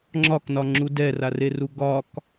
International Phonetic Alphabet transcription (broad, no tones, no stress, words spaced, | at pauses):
ŋ͡ǁɒknɒŋ͡ǁu dɛrareru ɡɒk